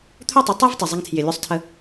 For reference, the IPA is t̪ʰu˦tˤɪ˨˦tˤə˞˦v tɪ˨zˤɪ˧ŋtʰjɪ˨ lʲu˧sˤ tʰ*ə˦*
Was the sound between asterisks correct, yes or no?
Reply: no